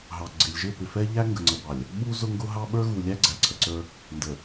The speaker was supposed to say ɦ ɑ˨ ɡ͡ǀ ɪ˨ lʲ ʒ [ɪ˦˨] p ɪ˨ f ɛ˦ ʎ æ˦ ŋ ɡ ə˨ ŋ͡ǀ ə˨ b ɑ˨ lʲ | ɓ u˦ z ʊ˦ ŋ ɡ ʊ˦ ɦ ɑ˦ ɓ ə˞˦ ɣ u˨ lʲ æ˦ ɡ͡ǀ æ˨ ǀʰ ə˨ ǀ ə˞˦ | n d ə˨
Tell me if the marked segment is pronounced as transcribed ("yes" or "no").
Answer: yes